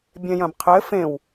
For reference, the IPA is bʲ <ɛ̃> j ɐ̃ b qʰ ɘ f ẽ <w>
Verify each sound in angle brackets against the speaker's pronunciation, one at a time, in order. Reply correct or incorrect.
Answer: correct, correct

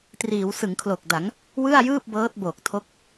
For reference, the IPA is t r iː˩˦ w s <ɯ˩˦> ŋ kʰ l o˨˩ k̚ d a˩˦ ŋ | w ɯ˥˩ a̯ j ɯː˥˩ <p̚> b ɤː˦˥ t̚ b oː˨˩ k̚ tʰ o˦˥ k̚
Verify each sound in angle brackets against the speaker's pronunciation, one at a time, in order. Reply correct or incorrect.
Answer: correct, correct

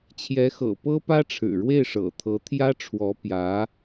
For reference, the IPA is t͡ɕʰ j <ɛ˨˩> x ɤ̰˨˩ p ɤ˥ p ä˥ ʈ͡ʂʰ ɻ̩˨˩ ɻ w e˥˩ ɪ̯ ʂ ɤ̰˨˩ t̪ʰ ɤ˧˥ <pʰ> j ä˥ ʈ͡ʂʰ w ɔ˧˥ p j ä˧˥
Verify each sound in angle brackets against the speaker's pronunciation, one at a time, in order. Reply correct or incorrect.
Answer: incorrect: ɛ˧˥, incorrect: t̪ʰ

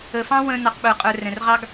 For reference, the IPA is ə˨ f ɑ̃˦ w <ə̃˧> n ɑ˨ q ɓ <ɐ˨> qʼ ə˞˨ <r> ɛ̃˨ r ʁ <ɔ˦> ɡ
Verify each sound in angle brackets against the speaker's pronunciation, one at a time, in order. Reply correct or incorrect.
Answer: correct, incorrect: ə˞˨, correct, incorrect: ɑ˦

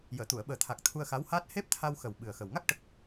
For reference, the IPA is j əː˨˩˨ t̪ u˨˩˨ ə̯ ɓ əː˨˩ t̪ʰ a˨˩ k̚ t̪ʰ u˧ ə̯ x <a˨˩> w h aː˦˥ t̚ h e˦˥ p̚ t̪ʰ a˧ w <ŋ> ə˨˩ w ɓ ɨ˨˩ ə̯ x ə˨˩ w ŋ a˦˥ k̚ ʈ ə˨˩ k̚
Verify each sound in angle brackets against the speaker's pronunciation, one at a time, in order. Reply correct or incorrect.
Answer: incorrect: a˧˥, incorrect: x

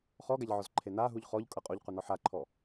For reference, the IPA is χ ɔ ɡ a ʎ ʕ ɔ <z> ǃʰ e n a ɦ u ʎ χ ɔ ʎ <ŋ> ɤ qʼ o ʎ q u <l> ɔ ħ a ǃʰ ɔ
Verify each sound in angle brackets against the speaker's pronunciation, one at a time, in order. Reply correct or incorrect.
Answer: correct, incorrect: kʼ, incorrect: n

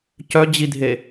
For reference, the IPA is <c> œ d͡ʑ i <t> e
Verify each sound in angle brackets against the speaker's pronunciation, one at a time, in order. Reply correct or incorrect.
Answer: correct, incorrect: dʱ

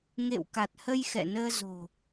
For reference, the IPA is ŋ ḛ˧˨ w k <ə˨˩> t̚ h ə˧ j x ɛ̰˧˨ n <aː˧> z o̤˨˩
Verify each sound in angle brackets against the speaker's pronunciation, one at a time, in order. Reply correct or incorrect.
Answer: incorrect: a˨˩, incorrect: əː˧

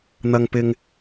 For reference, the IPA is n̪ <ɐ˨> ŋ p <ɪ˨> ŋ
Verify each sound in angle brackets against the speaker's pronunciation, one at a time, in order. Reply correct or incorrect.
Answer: correct, correct

